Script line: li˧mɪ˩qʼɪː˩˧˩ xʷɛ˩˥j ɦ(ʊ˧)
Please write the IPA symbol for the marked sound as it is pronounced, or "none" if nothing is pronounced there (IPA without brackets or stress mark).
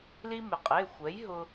ʊ˧